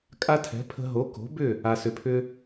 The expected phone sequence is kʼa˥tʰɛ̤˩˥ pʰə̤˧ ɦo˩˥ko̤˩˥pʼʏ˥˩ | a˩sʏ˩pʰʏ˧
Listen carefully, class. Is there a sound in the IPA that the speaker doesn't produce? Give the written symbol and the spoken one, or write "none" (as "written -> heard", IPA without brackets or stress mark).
pʼ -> b